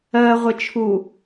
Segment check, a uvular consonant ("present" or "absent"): present